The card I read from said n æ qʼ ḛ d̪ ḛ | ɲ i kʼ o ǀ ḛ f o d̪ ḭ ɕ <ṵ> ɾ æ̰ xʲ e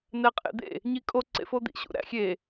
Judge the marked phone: correct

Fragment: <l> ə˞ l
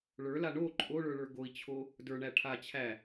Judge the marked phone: incorrect: ɭ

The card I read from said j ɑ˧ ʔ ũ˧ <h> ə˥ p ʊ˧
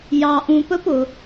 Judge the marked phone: incorrect: p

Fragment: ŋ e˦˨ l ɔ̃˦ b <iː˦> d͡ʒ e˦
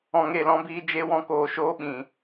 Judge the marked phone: correct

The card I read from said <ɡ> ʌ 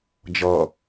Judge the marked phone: incorrect: d͡ʒ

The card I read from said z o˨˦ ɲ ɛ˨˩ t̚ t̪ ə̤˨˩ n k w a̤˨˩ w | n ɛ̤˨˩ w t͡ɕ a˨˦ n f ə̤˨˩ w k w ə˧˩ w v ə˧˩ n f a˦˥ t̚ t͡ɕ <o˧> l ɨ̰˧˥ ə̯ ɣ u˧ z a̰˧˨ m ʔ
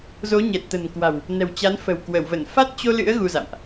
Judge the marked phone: correct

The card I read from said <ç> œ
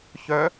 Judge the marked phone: correct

